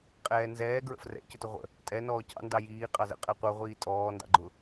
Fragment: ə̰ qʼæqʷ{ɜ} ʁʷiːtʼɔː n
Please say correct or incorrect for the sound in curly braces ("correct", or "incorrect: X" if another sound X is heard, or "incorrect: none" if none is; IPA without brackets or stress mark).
incorrect: ə˞